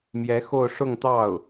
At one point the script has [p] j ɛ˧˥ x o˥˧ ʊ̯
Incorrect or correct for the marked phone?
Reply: incorrect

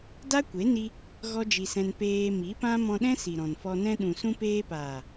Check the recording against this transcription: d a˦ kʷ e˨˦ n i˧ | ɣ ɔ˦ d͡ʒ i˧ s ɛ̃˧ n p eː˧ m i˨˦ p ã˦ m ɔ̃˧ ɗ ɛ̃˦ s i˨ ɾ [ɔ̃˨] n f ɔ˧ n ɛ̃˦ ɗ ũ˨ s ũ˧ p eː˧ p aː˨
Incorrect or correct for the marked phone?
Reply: correct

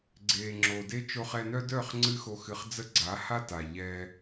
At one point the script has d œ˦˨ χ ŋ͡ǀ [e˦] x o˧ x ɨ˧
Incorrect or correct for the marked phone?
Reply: incorrect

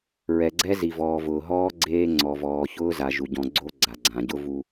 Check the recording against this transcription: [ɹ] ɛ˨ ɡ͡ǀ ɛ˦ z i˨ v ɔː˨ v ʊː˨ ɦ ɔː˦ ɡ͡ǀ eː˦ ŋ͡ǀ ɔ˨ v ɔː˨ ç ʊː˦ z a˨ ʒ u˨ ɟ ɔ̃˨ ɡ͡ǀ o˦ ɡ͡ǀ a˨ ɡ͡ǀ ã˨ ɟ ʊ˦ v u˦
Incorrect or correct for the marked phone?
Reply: correct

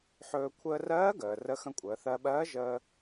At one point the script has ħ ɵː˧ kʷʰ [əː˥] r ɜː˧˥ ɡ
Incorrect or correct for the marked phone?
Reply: incorrect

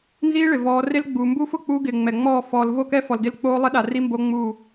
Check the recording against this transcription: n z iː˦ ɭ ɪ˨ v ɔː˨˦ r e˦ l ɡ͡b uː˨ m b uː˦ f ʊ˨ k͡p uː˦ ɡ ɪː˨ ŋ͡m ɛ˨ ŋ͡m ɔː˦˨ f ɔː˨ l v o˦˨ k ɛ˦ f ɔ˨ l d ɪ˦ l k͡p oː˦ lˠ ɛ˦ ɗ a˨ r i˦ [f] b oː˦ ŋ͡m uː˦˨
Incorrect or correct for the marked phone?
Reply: incorrect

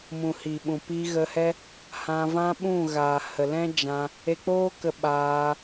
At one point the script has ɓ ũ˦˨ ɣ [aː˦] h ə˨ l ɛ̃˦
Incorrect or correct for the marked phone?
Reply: incorrect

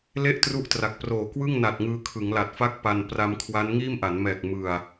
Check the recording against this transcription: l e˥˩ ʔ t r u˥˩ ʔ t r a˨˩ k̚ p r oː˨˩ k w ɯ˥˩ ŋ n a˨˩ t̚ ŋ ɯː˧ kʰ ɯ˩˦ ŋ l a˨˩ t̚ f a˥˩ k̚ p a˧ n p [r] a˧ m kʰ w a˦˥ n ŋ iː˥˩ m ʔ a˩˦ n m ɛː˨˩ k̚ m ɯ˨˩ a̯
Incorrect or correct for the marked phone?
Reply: correct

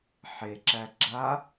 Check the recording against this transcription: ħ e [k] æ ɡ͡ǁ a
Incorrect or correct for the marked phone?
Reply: incorrect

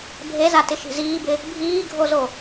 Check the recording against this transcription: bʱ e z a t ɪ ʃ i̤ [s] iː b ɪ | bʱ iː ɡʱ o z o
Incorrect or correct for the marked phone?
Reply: incorrect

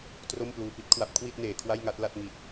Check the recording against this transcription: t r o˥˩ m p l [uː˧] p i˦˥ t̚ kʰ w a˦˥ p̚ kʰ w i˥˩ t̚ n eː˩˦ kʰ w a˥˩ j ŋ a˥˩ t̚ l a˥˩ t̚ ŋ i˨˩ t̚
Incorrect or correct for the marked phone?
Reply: correct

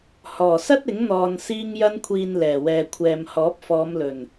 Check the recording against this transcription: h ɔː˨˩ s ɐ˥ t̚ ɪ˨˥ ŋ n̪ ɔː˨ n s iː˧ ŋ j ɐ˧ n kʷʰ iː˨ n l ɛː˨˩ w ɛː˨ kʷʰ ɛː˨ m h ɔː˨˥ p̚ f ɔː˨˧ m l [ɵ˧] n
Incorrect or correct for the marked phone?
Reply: incorrect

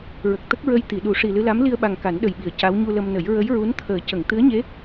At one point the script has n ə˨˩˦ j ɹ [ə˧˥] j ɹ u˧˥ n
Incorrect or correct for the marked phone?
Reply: correct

